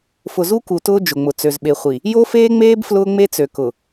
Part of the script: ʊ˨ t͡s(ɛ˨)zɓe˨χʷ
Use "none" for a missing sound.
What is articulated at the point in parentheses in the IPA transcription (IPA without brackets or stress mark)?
ø˨